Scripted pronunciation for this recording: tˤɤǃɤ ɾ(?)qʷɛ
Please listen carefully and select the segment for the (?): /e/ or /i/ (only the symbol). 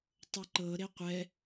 e